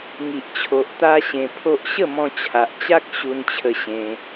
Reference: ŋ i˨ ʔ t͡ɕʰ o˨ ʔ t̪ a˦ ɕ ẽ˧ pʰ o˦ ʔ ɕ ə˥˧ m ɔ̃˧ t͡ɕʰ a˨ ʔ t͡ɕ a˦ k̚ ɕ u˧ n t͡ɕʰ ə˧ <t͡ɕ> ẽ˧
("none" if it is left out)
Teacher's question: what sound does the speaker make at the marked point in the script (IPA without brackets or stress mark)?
ɕ